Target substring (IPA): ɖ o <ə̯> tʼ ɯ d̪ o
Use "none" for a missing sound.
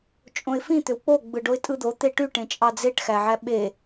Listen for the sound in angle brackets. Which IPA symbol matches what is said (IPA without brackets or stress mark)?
ɪ̯